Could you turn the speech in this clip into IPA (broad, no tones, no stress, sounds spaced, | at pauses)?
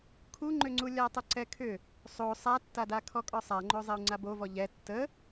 kʰ u ŋ͡ǃ ʏ ŋ͡ǀ u lʲ a tˤ ə ǀ ɛ kʰ ʏ | sˤ o sˤ a tː a d a kʰ ɔ kʼ ɔ sˤ a ŋ͡ǃ o zˤ ɛ u̯ ŋ͡ǀ a b o v ɔ ʎ ɛ tː ə